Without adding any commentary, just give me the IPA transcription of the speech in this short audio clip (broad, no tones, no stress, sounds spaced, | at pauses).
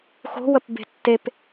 x o̤ w ə p b e̤ tː e p